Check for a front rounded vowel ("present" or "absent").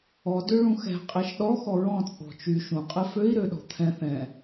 present